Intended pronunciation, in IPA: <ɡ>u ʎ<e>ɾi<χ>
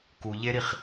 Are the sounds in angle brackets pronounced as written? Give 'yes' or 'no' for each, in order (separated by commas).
no, yes, yes